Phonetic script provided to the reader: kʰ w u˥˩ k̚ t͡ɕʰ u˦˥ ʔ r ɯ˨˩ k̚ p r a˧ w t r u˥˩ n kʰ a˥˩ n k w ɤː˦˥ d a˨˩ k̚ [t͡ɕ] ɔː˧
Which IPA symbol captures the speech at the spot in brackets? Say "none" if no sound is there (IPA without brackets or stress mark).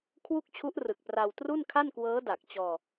t͡ɕ